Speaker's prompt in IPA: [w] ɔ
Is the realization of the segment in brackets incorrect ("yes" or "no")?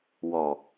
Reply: no